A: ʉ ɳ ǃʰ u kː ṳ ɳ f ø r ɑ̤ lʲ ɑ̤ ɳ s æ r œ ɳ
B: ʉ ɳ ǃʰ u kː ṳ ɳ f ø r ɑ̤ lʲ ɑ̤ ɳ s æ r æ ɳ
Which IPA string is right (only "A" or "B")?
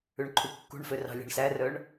A